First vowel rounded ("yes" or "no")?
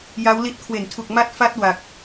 no